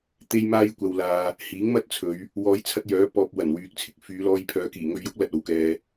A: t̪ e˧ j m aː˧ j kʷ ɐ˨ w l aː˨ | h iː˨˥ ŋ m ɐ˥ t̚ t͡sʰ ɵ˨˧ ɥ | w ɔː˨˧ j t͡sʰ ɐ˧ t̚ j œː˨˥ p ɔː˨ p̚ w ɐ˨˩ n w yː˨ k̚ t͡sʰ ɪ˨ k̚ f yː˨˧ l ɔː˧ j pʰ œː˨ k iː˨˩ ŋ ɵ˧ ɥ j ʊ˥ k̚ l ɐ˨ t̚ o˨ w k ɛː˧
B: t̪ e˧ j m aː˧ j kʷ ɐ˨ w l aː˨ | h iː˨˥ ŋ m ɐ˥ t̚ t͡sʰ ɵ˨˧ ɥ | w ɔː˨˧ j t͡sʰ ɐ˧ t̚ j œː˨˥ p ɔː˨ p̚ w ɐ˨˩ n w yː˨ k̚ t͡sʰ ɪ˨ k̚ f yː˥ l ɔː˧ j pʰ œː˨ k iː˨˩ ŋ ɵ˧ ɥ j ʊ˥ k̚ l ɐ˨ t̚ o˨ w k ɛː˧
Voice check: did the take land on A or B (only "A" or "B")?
A